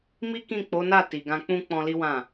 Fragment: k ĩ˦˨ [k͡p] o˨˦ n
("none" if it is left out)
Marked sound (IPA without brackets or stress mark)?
k͡p